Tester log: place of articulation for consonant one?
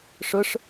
retroflex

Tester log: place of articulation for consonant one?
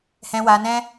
glottal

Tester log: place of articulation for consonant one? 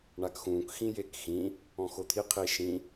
retroflex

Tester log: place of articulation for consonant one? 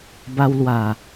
labial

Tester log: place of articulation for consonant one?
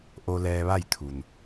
glottal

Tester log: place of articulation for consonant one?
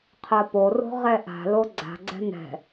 uvular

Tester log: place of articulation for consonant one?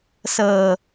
alveolar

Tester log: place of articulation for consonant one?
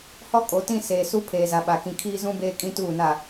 glottal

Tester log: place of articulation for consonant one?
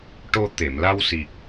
retroflex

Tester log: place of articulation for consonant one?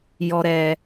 palatal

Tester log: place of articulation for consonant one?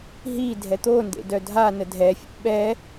glottal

